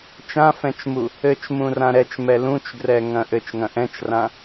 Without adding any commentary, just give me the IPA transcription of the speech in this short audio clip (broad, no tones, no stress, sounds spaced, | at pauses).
t͡ʃ ã f ɛ̃ t͡ʃ m u | ɘ t͡ʃ m ũ r ã ɾ ɛ t͡ʃ m ɛ l ũ t͡ʃ ɡ r ɛ ŋ ɐ̃ ʔ ɘ t͡ʃ ŋ ɐ̃ ʔ ɛ̃ t͡ʃ r ã